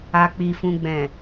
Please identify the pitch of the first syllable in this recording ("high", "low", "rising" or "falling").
low